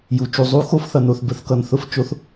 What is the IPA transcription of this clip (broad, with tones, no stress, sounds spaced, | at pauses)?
j u˩ t͡ʃ u˩ zˤ u˧˥ x o˧˥ f θ ʌ˩ n o˩ θ b ə˩ θ k ʌ˩ n θ ʊ˧˥ f t͡ʃ o˧˥ θ